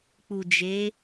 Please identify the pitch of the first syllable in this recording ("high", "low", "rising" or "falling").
low